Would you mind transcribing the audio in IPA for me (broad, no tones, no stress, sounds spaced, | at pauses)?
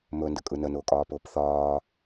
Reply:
m ɵ n d ə kʼ ɯ n ə n ʊː kʼ ɒː p ʊː p θ ɒː